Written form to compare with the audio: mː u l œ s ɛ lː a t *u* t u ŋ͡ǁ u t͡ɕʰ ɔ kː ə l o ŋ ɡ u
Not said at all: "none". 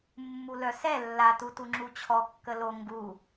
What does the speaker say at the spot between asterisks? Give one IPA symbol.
u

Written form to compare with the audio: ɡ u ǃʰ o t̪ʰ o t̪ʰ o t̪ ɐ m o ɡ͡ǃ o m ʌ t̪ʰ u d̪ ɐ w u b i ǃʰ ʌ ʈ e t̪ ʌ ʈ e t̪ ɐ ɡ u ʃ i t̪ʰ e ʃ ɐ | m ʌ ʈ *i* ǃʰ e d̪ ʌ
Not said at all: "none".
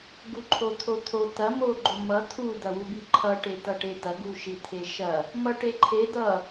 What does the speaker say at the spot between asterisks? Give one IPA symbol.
e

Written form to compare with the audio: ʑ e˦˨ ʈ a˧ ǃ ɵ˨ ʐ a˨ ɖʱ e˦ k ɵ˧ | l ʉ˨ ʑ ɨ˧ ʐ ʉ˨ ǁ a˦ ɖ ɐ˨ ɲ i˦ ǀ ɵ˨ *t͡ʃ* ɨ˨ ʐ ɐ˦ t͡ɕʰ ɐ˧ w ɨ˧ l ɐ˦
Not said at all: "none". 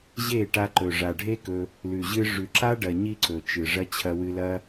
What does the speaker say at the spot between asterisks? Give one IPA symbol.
t͡ʃ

